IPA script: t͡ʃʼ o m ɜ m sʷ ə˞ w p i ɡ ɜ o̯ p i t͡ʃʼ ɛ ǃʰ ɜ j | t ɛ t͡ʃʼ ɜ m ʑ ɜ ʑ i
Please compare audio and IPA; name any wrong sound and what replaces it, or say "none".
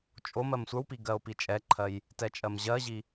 none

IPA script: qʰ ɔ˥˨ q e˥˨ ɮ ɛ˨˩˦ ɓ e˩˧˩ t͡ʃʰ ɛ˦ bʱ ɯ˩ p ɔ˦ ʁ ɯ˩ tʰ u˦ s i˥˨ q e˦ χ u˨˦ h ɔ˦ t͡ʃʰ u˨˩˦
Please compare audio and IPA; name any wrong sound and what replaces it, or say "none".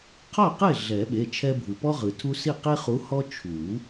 none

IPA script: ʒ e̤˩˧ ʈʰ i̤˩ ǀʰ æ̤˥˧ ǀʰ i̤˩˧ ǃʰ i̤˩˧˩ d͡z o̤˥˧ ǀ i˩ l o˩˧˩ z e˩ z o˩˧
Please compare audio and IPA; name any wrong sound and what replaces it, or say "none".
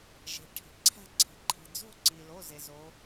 none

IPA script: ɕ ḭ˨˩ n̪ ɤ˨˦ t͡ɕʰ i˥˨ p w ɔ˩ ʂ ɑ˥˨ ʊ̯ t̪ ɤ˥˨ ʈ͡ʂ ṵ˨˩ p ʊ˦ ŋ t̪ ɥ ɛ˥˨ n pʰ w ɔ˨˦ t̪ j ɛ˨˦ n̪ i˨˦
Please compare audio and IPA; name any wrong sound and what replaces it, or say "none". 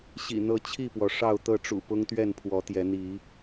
none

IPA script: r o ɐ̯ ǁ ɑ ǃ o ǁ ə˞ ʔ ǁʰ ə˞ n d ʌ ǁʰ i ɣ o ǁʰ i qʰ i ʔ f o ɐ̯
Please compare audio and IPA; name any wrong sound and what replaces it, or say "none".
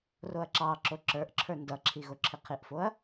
ǃ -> ǁ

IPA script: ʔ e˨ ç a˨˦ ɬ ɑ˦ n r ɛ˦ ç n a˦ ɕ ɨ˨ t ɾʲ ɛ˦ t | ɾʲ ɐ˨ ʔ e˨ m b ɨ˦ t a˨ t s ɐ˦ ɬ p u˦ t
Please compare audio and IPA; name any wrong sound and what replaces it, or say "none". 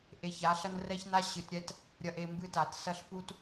ɑ˦ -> ɐ˦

